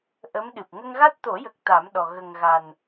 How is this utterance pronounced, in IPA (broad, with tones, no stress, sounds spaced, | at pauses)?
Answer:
ʔ ə˧˥ m ɗ ɨ˨˩ p̚ ŋ ə˧ ŋ ɣ a˦˥ t̚ t̪ o˨˩˦ j ə˨˩ k̚ t̪ a˨˩˦ m ɗ ɔ˨˩ ɣ ə˨˩ ŋ ɣ a˨˩ n